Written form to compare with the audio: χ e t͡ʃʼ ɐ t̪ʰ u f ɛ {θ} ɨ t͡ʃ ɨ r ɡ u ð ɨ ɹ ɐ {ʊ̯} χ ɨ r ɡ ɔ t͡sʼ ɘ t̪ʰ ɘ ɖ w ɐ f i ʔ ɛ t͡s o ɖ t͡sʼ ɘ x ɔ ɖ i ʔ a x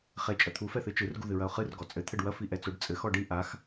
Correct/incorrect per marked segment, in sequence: correct, correct

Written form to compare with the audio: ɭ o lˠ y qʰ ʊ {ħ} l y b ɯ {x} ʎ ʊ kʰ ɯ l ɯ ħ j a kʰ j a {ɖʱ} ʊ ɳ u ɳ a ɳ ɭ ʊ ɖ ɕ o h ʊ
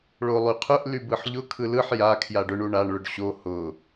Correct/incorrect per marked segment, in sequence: incorrect, incorrect, incorrect

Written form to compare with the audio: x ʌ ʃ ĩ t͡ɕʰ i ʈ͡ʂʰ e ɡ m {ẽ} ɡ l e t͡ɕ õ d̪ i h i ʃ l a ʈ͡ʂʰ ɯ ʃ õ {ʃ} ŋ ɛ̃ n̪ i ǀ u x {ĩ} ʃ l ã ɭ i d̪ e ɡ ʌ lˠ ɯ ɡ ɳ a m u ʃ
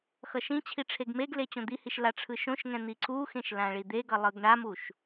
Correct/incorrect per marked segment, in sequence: incorrect, correct, incorrect

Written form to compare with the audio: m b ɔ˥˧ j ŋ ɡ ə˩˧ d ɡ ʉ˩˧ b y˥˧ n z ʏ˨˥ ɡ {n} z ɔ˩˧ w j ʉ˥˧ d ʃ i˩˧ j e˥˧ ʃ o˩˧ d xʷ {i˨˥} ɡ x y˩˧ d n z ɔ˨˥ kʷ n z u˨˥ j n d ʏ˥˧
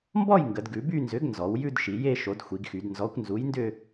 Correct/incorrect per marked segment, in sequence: correct, incorrect

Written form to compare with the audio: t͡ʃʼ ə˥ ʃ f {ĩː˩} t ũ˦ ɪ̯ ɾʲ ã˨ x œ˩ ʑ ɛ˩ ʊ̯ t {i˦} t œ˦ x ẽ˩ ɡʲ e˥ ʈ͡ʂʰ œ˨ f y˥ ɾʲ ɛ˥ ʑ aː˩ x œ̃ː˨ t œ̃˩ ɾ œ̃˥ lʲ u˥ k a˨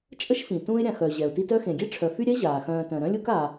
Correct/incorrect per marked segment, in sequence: incorrect, correct

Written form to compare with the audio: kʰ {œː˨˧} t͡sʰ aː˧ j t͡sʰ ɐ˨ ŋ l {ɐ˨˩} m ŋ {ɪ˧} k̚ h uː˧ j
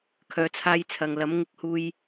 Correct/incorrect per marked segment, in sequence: correct, incorrect, correct

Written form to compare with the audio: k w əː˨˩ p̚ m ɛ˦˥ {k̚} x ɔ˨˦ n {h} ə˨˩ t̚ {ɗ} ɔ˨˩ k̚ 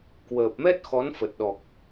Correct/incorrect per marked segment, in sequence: incorrect, incorrect, correct

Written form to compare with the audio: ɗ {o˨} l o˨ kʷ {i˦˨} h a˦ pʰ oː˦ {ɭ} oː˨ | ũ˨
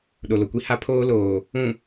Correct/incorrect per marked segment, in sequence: correct, incorrect, incorrect

